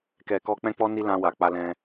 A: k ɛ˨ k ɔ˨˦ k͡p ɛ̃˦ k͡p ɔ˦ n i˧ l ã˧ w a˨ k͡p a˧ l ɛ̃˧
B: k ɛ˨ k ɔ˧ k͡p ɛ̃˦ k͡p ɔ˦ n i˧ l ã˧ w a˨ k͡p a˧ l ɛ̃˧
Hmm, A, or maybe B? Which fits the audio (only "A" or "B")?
B